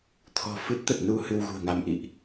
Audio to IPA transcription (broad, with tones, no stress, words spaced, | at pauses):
t̪ʰɔ̤˨˩ fɨ˦˥t̚ t̪ə˨˩t̚nu˧ hɨ˧wɣṳ˨˩ə̯ŋa˧m ʔḭ˧˨ʔ